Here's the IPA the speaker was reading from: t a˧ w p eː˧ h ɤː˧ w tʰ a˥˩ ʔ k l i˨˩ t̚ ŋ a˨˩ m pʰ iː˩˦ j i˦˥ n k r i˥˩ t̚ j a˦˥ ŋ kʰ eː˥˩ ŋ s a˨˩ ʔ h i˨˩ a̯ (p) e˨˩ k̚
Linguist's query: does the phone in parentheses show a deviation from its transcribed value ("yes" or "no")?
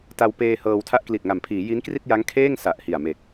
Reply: yes